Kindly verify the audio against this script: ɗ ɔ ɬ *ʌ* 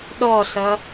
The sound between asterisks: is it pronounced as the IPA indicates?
yes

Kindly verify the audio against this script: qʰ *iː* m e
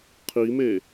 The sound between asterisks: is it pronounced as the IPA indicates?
no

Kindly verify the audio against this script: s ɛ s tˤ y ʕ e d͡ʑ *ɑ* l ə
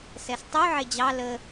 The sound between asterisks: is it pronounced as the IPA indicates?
yes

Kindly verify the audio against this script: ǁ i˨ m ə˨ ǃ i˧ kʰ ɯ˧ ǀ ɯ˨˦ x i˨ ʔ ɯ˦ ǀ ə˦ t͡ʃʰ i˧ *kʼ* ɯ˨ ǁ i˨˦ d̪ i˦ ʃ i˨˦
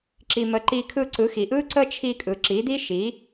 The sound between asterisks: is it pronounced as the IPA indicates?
yes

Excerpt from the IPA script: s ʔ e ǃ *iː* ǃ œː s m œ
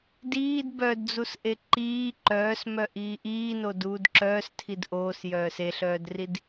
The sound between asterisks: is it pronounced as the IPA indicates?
yes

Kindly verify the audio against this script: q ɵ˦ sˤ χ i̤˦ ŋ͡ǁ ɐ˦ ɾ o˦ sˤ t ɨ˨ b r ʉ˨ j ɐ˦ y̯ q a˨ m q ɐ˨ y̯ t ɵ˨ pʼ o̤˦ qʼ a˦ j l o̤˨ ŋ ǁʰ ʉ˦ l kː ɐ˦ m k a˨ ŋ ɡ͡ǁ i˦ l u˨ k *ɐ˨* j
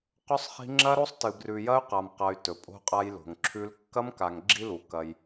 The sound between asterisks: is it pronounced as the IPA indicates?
no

